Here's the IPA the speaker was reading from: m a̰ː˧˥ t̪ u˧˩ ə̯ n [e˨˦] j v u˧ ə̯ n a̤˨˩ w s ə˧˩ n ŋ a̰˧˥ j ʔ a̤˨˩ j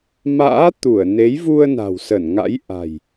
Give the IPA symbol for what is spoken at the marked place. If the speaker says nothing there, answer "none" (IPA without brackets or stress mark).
e˨˦